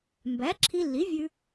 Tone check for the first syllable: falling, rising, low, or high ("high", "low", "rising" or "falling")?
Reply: rising